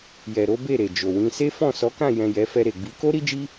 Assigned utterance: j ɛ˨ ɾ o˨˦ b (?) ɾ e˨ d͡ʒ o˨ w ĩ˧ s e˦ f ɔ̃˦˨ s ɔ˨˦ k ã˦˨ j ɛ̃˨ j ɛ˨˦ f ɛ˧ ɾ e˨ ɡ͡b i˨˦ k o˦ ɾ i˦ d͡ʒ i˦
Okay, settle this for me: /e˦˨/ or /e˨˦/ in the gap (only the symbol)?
e˦˨